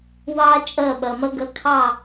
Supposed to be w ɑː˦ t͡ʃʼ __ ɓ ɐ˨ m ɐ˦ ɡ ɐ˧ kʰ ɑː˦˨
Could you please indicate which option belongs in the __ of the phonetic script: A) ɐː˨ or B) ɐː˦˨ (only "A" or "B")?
B